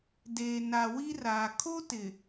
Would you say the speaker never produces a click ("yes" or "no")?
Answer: yes